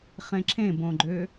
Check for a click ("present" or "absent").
present